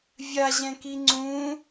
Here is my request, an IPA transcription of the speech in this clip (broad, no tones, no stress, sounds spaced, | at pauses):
vʲ a ʑ ɛ̃ k i ŋ͡ǀ ũ